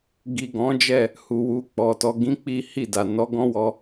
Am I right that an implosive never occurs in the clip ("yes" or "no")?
yes